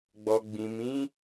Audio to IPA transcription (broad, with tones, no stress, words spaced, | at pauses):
ɡ͡bɔ˨ɡ͡bĩ˨mĩ˨˦